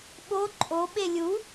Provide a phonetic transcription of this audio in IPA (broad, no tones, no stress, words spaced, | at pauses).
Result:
ɓo ǃʼo ɓelʲu